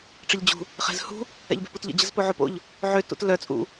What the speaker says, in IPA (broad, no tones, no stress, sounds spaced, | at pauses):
ʈ͡ʂ ə ʎ d͡ʑ ṳ | χ ɛ̤ z h ṳ | ɛ̰ ʎ b ɛ̤ p u t ʎ ə̰ d͡ʑ ə z p o ʕ o p o̰ ʎ | ʕ ø t ṵ t l œ t͡sʼ ṵ